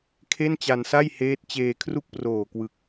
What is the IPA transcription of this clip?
kʰ e˥˩ n t͡ɕ a˧ n s a˥˩ j h eː˦˥ t̚ t͡ɕ eː˧ kʰ r u˥˩ k̚ p r oː˨˩ k w ɯ˨˩ k̚

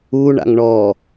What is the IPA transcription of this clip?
u ɳ a̰ ŋ ɳ ɔ

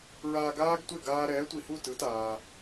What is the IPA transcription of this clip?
ɹ aː˧ ɡ aː˥ ɡ tʷ e˥˩ ɡ aː˧ ɾ ɛː˩˥ tʷ i˩ h u˥˩ t ɯ˩˥ t aː˩

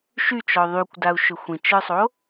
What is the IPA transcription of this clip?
ʃ y t͡ʃ ɔ ðˤ y kʷ d a u̯ ʃ ʏ xʷ ĩ t͡ʃ ə˞ sˤ o

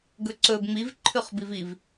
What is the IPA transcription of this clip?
ɡ ɵ ǀ ɵ b ŋ͡m i v ǃʰ ʉ χ b i v i v

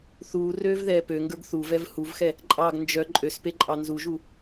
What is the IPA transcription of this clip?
θ uː r øː v ð ɛː p ø ŋ ɡ ə˞ ɡ θ u v ɛ v h u v x ɛ | ǃʼ ɑ ɡ n d͡ʒ œ ǃʼ ø s p e ǃʼ ɑ n z u ʒ u

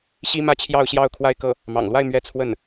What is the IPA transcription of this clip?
ɕ i˥ m ä˥ t͡ɕʰ j ɑ˥˧ ʊ̯ ɕ j ɑ˥˧ ʊ̯ kʰ w a˥˧ ɪ̯ k ɤ˥˩ | m ɑ̰˨˩ ŋ l w a˥˧ ɪ̯ m ɥ ɛ˥˧ t͡sʰ w ə˥˩ n

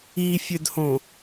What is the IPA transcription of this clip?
i fʲ ø d h õ

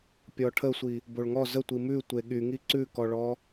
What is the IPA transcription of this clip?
pʲ ɔ ʈʰ ə sʷ i | b o ɭ ŋ ɔ z ə tʷ i m ʉ tʷ e ɠ y ŋ i ǀ ʉ k ɔ ɭ ɔ

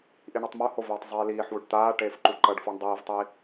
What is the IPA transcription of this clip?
ʔ i ɳ ɯ tˤ m o h o v eː tˤ zˤ eː l iː ħ w u ɖ t̪ aː ʈ eː f ǃ u ǃ ʌ ɖ f o ɳ dˤ iː v tˤ i

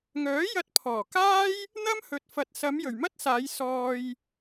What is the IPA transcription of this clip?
ŋ œː˨˥ j ɐ˧ t̚ pʰ ɔː˨˩ k aː˥ j | n̪ ɐ˥ m h ɵ˨ t̚ f ɐ˨ t̚ s ɐ˨˧ m j ɵ˨˩ ɥ m ɐ˥ t̚ s aː˨˧ j s ɔː˧ j

